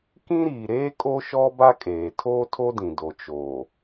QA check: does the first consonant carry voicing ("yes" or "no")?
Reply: no